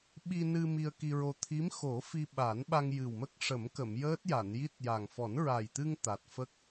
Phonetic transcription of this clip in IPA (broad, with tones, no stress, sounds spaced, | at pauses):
ɓ i˧ n ɨ˧ m i˧ ə̯ k i˧ ɹ o˧ t̪ʰ i˧˥ m x o˨˩˦ f i˧ ɓ a˨˩˦ n ɓ a˧ ŋ j ɨ˨˩ w m ə˦˥ k̚ ʂ ə˨˩˦ m k ə˨˩˨ m j əː˦˥ t̚ j a˨˩˨ n j i˦˥ t̚ j a˨˩ ŋ f ɔ˨˩˦ n ɹ a˨˩ j t̪ ɨ˧ ŋ t̪ a˨˩ t̚ f ə˦˥ k̚